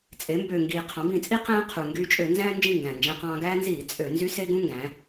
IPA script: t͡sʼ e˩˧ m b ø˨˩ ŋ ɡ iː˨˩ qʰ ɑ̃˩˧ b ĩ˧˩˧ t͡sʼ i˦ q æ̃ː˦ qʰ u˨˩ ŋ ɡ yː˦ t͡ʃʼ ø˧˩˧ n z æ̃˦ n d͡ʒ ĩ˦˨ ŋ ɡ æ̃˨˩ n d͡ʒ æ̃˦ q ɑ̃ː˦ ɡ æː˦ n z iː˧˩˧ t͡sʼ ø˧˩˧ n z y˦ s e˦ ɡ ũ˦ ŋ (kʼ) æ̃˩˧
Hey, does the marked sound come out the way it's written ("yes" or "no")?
no